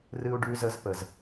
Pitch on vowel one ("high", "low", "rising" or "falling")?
high